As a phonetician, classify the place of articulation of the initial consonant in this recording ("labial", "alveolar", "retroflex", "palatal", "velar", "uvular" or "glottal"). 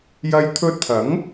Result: palatal